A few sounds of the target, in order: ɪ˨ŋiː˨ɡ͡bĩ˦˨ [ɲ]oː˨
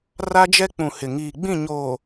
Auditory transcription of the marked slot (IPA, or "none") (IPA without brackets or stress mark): ɲ